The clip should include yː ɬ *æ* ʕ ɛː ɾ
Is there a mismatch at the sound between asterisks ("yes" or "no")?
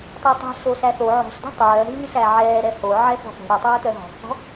no